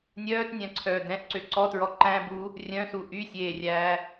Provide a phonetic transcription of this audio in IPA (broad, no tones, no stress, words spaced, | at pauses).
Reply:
nʲœːtnʲæ̃ǀʰœː dɛ̃ʔǀø ǀɔtɹɔ ǃæ̃ bu | rʲœ̃su ʔysʲeːrʲæː